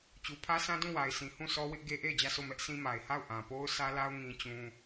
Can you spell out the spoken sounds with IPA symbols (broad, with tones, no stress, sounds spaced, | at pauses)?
t͡ɕ u˨ pʰ ä˦ sʰ ã˦ d ũ˦˨ w a˨ ɪ̯ sʰ ĩ˨ h ũ˦˨ sʰ ɔ˦ w ɪ˦ ʔ ɡ e˦ ʔ e˦˨ ɪ̯ d͡ʑ ä˦˨ s o˦˨ m ɛ˦ ʔ s ĩ˦ m a˨ ɪ̯ h a˦˨ ʊ̯ ʔ ã˨ p o˦ ʊ̯ sʰ ä˦ l a˦ ʊ̯ ŋ ĩ˦ t͡ɕ ũ˦